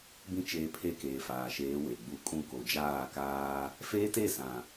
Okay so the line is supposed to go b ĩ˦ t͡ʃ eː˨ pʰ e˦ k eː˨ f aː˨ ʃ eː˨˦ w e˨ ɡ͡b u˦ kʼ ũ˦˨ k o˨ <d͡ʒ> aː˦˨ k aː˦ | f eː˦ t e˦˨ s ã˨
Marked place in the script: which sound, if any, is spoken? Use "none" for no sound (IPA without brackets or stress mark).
d͡ʒ